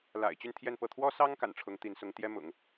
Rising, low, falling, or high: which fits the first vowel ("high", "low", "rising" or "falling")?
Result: low